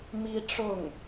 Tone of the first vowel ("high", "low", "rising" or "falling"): high